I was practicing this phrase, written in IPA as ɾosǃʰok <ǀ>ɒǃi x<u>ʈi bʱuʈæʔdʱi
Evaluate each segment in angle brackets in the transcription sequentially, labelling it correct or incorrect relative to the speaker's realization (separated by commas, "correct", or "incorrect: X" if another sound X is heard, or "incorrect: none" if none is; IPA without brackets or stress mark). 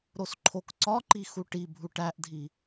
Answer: correct, correct